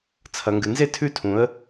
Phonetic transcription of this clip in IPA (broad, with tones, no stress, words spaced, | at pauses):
t͡sʰɐ˨ŋɡɨ˨nze˦ tʰʉ˦tʰũ˨˦ə̯